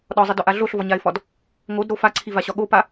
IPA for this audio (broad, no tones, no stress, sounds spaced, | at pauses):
ɗ ɒ zˤ i d ɒ ʔ a ɮ o ɬ v ɒ ɲ a ɪ̯ f ɒ d | ŋ o d ɾ o f a ǀʰ i v a ɕ ɒ ɠ o p a